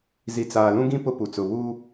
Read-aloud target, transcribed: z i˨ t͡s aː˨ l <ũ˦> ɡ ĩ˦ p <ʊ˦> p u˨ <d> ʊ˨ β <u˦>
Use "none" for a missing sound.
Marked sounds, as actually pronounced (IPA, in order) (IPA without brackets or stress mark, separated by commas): ũ˦, ʊ˦, t͡s, uː˦